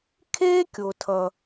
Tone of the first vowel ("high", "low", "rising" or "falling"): high